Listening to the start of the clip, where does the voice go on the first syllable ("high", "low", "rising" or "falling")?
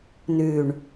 low